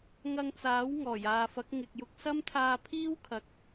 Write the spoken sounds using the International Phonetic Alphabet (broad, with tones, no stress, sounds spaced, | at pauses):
ŋ ɐ˧ ŋ t͡s aː˨˥ w ŋ ɔː˨˩ j aː˨ f ɐ˨˥ k̚ ŋ ɪ˧ k̚ j ʊ˥ k̚ s ɐ˥ m t̪ʰ aː˧ pʰ iː˥ w kʰ ɐ˨ k̚